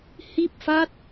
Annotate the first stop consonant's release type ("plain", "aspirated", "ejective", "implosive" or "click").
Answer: plain